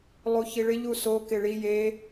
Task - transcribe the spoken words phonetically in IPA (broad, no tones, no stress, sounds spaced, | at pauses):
lˠ u ç i ɭ ɪ ʎ u s o k ɪ ɭ i j e